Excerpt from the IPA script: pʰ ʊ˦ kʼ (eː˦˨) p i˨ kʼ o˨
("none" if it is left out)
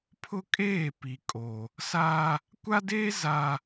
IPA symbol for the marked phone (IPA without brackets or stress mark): eː˦˨